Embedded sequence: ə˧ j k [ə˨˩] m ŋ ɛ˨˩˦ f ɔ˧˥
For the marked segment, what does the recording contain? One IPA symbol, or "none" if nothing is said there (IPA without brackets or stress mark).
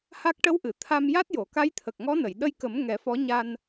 ə˨˩˦